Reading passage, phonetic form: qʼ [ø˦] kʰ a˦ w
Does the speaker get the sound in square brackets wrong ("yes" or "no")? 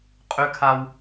no